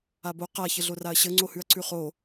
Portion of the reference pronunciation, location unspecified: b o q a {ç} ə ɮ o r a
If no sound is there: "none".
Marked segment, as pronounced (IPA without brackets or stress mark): ç